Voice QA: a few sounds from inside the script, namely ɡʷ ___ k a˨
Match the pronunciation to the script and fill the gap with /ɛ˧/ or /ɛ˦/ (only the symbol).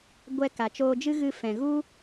ɛ˧